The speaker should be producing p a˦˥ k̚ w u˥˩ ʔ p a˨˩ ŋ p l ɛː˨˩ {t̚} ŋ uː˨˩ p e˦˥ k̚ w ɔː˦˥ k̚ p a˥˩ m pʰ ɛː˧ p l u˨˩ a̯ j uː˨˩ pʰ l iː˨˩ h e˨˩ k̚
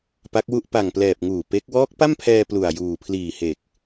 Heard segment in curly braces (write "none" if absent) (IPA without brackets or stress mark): p̚